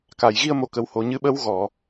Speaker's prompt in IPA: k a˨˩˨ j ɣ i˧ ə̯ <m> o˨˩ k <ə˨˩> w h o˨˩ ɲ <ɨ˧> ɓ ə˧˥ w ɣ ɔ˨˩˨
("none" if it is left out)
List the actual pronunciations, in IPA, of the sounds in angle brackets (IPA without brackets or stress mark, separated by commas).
m, ə˨˩, ɨ˧